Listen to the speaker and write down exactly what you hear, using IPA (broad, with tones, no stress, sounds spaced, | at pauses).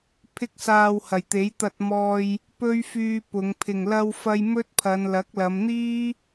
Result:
pʰ ɪ˥ k̚ s aː˧ w h ɐ˨˩ j t̪ e˨˥ j t̪ ɐ˧ t̚ m ɔː˧ j | p ɵ˥ ɥ f yː˧ p ʊ˨˧ ŋ pʰ ɪ˨˩ ŋ l ɐ˧ w f ɐ˧ j m ɵ˥ t̚ pʰ ɐ˨˧ n l ɐ˨˥ k̚ l ɐ˨˧ m n̪ iː˥